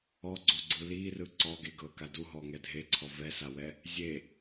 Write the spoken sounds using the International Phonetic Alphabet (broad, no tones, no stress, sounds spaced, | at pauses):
ɔ ɡ͡ǀ o ɡ͡ǀ ɯ l i r ɯ ǀ ɔ ɡ e ɡ ɤ k a d u ɦ ɔ ŋ ɛ dʱ e ǀʰ ɔ v ɛ s a w ɛ | zʲ e